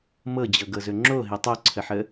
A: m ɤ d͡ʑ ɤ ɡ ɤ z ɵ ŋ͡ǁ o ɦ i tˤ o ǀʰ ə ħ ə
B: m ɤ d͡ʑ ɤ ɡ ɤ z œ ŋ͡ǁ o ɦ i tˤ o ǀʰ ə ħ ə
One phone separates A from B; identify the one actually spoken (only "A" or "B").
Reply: A